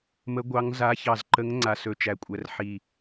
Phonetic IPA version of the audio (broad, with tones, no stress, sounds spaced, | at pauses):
m ə˨˦ ɡʷ ɑ˨˦ ŋ z a˨˦ ç ɑ˨˩ z ǃ ə˨˦ ŋ ŋ͡ǀ a˨˩ s ɵ˨˩ t͡ʃ æ˨˩ kʷʼ æ˨˩ r ħ i˨˩